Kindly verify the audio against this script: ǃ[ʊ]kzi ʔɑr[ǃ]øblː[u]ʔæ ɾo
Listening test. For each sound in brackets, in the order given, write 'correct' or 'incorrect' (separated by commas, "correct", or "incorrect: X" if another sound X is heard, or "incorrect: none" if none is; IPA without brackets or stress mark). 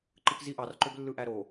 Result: incorrect: ɯ, correct, incorrect: ɯ